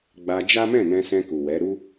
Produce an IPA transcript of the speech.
ɡ͡b a˧ d͡ʒ a˦ m ɛ̃˦˨ n ɛ̃˧ s ɛ̃˧ k u˨ w ɛ˨˦ ɾ u˦

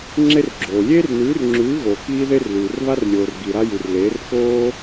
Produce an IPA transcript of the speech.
ŋ͡ǁ e˥ r ɡ͡ǁ oː˨ lʲ eː˥ r n ʉː˨˥ r ŋ͡ǁ ʉː˨˥ ɣ oː˨ k iː˥ ð e˥ r l ʉː˨ r β a˥ r lʲ oː˨ r ɡ i˨ ɾ a˥ j ʉ˨ r l eː˨˥ r k oː˥

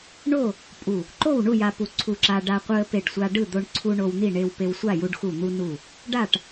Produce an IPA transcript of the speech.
ɳ o˥˨ | pʼ u˧˩ | ǃ o˥˨ w ɳ u˥˨ j a˧ p u˧˩ ǀʰ u˧˩ ǁ a˧ ɖ a˧ qʷ ɯ˧ ə̯ p e˧˩ ɖ sʷ a˧ ɖ ɯ˥˨ d̪ o˧ ɳ ǀʰ u˧ ɳ o˧ w n̪ i˥˨ ɳ e˧ w p e˧ w sʷ a˥˨ j u˧ ɖ x u˧˩ n̪ u˧ n u˧˩ | ɖ a˥˨ ʈ

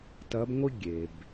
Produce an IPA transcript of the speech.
t ɐ˧˥ b ŋʷ ɨ˥ ɡʲ e˩ b

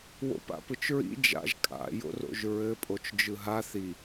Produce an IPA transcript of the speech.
w o̰ p a̰ p ɯ t͡ʃ ɹ ḭ d͡ʒ a̰ ʒ kʼ a̰ j o̰ r o̰ ʒ ɹ ɘ pʼ o t͡ʃ d͡ʒ ɯ ɦ a θ i

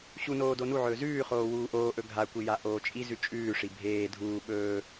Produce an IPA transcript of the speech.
ɕ u n oː d o n u ʕ ɵː z ʉː χ oː w uː ʔ oː ʔ ɵ ɡʱ a kʷ i j a ʔ oː t͡ʃʼ i z ʉ t͡ʃʼ ʉː ʂ i bʱ eː dʱ uː ɓ ɵː

